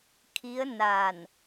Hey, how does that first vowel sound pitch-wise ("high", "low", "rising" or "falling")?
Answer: rising